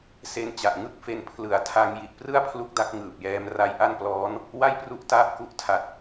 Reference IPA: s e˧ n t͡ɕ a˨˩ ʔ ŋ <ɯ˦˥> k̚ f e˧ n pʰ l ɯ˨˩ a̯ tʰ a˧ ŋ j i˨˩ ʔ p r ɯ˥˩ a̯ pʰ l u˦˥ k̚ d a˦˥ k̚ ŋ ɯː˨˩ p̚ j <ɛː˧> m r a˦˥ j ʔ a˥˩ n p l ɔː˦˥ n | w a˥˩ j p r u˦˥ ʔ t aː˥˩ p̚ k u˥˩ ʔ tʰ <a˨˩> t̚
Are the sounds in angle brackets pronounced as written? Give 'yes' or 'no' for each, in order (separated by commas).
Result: no, yes, yes